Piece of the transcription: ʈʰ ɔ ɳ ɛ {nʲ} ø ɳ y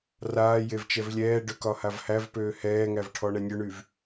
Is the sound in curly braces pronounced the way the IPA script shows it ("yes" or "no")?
yes